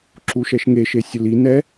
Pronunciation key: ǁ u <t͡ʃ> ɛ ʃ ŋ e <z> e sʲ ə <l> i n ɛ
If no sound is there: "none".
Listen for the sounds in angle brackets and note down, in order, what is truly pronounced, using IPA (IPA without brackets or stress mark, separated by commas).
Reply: ʃ, ʃ, l